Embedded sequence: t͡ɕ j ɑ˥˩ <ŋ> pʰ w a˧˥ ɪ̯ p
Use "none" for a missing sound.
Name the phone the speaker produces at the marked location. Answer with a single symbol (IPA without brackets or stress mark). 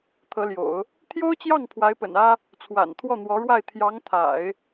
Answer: ŋ